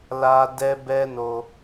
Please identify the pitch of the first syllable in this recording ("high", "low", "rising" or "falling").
high